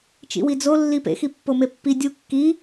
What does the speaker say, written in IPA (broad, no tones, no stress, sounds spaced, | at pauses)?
t͡ʃ ḭ w i d͡z o lː i p ḛ x i pː o m e pː i dʲ u kː i